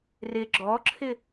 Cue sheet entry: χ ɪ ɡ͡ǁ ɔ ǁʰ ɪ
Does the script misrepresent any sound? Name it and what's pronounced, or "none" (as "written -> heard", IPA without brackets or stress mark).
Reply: χ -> r